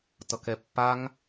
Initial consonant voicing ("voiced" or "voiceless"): voiceless